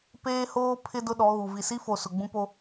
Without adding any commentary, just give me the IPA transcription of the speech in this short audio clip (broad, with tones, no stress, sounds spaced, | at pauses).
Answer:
p eː˦ h oː˦ pʰ ɪ˦ d ʊ˦ ɗ ɔ˨˦ ɣ u˨ v i˨ s i˦ f o˨ s ʊ˨ ɡ͡b ũ˦ p o˦